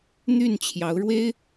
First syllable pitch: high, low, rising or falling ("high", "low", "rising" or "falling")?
falling